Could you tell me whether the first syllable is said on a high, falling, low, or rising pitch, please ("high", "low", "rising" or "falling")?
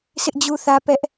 high